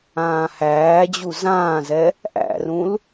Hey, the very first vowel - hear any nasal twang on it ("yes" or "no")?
yes